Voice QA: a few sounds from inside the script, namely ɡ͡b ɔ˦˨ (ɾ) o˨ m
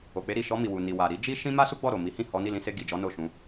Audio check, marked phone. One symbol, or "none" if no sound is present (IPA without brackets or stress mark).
ɾ